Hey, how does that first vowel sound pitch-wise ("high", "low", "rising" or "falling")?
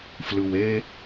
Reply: low